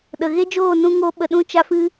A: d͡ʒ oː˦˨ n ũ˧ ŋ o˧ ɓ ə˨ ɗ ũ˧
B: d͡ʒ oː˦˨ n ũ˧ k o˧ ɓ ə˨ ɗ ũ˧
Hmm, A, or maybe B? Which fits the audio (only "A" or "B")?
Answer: A